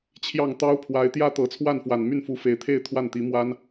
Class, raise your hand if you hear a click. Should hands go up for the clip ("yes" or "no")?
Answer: no